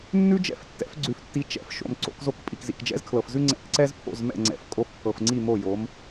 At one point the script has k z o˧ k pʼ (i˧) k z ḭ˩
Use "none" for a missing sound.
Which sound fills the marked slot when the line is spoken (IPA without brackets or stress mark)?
i˩